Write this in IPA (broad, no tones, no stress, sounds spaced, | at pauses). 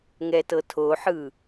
ŋ ɛ t ɤ tʰ o ħ ɯ